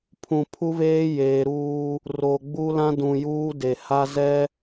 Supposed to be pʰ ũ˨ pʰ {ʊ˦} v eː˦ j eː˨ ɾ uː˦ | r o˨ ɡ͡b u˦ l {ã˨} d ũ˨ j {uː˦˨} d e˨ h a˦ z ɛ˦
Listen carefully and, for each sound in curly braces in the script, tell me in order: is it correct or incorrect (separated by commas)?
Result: incorrect, incorrect, incorrect